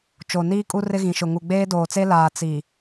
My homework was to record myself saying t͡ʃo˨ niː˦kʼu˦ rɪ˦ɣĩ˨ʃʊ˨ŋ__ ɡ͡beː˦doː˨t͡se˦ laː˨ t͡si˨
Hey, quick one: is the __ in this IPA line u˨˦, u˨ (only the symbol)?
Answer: u˨